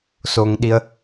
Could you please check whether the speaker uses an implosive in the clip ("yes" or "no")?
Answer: yes